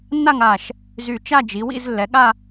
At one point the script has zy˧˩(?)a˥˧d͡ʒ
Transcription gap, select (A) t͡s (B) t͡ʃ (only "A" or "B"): B